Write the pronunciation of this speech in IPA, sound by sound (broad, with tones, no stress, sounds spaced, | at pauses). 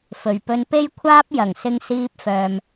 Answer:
f ɵ˨˩ ɥ p ɵ˧ n p e˥ j kʷʰ aː˥ p̚ j ɐ˨˩ ŋ s ɪ˧ ŋ s iː˧ p̚ f œː˨ m